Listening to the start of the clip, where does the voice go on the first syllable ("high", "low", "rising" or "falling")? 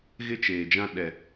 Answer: high